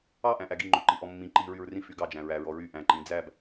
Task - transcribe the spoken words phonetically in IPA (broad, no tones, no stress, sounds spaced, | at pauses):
ɑ ʔ æ̃ ʔ æ ɡ i ŋ͡ǃ ɵ ǃ i ʔ ɔ mː ĩ ǃ i ɹ y ɹ r ĩ f y ɡ ɑ d͡ʒ æ̃ ɹ æ ɹ ɔ ɹ y ʔ æ̃ ǃ ĩ d͡z æ b